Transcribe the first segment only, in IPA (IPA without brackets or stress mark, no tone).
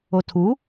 o